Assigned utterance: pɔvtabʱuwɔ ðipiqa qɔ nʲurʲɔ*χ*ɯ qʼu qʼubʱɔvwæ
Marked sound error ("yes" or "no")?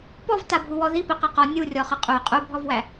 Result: no